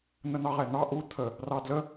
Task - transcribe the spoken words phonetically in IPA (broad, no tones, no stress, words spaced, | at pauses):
n̪ən̪ɑʁɛn̪ɑ ʔu t̪ʰə | rɑdlə